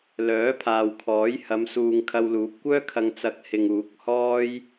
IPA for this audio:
lœː˨˥pʰaː˨wkʰɔː˨˥jhɐ˨˧m suː˨ŋ kʰɐ˧wluː˨˥p̚kʷœː˥kʰɐ˧ŋ t͡sɐ˧k̚hɪ˨ŋ uː˨˥k̚hɔː˥j

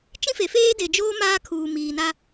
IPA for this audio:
t͡ʃĩ˦fe˨ feː˦de˨d͡ʒoː˦ maː˦kʰuː˨ miː˨na˦

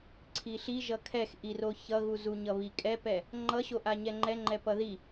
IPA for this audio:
ǀʰiɬiʒʌ kʰɛxʔiro çʌɣuzu ɲʌβikʼɛpɛ | ŋ͡ǃʌɕoʔa ɲɛŋ͡ǃɛŋ͡ǃɛ pʌði

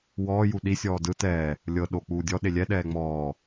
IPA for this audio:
wɔː juɗi sʲɔːdɯ tɛː | lʲɤ ɗo k͡puːdʲɔ ɗelʲɛ ɗɛːŋ͡mɔː

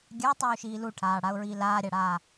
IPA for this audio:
ɡʲatˤuːʃiː luʈʰaːɽaʊ̯ɹiː laːɾʲaɽaː

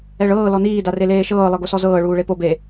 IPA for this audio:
ɛɭɤː lɔniː dareleːʃɤː lˠɤɡosɔzɤː ɭuːɭepob e

